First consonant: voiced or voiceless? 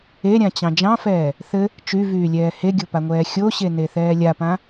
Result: voiced